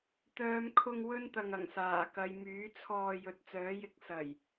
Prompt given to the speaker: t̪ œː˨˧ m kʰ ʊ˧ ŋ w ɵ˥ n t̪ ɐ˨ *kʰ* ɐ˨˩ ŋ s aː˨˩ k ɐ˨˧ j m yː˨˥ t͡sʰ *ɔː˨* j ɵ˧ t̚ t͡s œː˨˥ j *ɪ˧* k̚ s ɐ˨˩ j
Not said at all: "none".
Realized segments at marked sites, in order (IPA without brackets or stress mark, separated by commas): ŋ, ɔː˧, ɪ˨˥